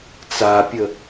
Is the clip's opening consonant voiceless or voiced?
voiceless